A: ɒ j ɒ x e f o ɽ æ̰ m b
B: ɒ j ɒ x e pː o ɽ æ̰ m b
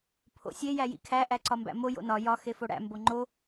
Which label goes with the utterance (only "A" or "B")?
A